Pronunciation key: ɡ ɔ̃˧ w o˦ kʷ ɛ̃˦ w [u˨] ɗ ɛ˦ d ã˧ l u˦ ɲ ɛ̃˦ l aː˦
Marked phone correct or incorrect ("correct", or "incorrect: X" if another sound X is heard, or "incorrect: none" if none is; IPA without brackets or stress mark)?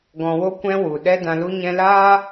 correct